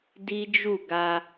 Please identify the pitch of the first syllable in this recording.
high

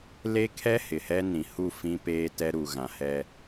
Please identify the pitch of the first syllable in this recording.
high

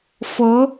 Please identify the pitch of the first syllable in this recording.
rising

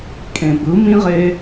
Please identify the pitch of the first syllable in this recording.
low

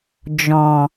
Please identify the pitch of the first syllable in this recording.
low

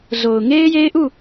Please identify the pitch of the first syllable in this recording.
low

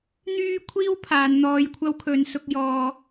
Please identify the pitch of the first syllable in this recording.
high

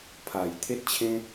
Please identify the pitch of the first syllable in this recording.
low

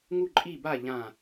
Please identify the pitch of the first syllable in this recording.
falling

